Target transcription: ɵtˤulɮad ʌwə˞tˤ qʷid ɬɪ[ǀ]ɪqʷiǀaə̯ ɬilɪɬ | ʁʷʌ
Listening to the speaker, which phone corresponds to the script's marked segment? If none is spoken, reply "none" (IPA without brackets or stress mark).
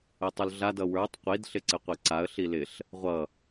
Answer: ǀ